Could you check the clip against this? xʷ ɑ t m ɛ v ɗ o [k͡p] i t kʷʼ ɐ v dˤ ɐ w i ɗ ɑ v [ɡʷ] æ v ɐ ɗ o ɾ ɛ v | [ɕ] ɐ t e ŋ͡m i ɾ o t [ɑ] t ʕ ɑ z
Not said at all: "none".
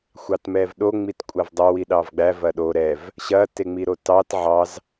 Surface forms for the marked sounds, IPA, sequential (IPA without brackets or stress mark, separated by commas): ŋ͡m, ɡ͡b, ɕ, ɑ